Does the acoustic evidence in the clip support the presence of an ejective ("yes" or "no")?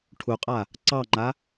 yes